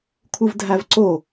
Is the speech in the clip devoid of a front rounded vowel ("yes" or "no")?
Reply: yes